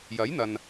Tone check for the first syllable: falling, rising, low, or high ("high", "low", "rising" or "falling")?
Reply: rising